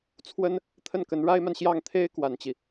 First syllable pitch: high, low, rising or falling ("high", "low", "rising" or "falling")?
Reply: high